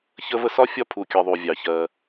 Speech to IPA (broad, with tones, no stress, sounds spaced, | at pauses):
ç ə˦ v ə˦ s ɒ˥ fʲ ɒ˦ pʰ u˩ kʲ ɜ˨ ðˤ u˩ vʲ ɑ˩ ç ɜ˨